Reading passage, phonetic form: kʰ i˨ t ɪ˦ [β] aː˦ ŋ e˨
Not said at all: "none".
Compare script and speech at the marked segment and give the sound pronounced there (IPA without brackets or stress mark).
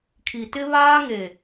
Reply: β